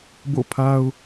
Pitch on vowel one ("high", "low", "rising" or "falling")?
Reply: falling